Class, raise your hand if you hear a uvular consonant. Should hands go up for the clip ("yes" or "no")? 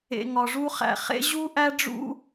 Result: yes